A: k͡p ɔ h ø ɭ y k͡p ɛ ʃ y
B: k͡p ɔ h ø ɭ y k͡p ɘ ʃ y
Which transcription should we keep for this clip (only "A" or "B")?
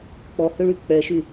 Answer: A